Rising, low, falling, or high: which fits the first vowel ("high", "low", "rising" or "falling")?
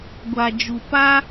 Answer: low